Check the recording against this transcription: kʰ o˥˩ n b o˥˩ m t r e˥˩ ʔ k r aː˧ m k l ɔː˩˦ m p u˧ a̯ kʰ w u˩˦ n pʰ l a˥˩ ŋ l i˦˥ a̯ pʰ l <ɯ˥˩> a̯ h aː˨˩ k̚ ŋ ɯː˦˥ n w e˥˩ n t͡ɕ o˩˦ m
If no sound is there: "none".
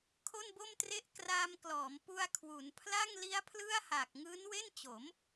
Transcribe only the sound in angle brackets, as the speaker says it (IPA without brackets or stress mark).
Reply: ɯ˥˩